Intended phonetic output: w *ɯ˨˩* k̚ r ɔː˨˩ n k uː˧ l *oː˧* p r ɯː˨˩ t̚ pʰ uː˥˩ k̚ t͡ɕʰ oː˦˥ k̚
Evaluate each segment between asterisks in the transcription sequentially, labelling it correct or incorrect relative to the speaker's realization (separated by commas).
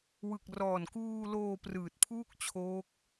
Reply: correct, correct